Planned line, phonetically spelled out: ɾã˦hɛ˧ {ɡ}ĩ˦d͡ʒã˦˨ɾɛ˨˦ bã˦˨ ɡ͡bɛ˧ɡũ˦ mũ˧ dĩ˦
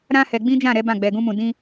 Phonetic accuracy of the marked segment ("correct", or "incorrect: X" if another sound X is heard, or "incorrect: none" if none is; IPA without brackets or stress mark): incorrect: ɡ͡b